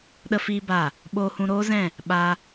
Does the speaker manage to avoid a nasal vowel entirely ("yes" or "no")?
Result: no